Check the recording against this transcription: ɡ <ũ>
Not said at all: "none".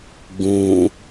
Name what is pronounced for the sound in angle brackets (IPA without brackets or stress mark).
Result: ũ